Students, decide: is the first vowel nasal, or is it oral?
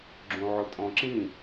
nasal